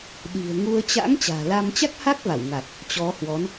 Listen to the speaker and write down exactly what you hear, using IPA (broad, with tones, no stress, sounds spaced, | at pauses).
ɗ i̤˨˩ ə̯ ŋ u˧ ə̯ t͡ɕ a̰˧˥ ŋ t͡ɕ a̤ː˨˩ l a˧ m t͡ɕ a˦˥ k̚ h a˦˥ k̚ v a˧˩ w ŋ a˨˩ t̚ | t͡ɕ ɔ˨˦ h w ɔ˨˦ n